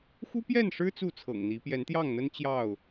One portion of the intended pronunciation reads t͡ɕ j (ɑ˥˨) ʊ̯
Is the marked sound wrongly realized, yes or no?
no